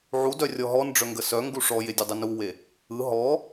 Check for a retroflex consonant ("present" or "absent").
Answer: present